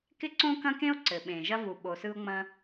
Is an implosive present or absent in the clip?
present